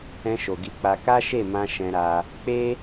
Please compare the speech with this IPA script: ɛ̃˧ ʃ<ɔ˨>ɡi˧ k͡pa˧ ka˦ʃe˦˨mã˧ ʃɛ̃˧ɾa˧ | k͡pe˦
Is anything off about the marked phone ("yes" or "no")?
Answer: yes